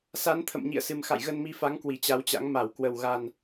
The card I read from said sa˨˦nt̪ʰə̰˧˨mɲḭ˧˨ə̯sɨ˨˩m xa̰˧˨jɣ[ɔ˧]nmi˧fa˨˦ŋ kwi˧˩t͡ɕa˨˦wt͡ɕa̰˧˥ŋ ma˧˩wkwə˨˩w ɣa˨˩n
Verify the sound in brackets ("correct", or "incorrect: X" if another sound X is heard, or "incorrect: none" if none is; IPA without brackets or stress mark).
incorrect: ə˧